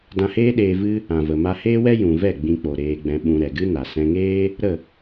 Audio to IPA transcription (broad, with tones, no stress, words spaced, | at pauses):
dã˧heː˦ɗeː˧ vɨ˦ | ã˨və˨ ma˧heː˦wɛ˦ jũ˨vɛ˦˨ ɡ͡bĩ˧k͡po˨ ɾeː˧ɡ͡bɛ̃˧ɓũ˧ ɾɛ˨ɡɨ˦ na˨sɛ̃˧ŋeː˦ | ɾə˦˨